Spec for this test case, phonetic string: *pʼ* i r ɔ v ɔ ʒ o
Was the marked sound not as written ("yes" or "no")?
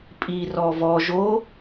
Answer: no